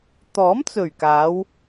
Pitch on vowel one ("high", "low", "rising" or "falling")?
rising